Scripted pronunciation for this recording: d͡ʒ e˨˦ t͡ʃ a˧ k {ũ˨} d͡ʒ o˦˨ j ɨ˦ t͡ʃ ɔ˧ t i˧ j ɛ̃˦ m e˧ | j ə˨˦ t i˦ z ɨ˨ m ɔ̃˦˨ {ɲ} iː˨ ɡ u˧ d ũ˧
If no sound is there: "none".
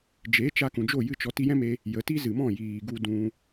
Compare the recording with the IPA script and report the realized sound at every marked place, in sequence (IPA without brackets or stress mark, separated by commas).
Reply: ũ˨, j